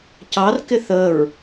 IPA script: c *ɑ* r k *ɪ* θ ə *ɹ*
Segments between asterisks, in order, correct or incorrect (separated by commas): correct, correct, correct